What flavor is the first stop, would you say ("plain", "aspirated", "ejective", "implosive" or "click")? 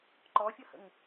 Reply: click